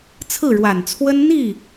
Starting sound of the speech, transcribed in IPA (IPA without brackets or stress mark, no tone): t͡sʰ